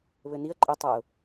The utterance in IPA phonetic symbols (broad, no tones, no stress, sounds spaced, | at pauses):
β ɘ n i ə̯ ǃʼ ɘ tˤ a ʊ̯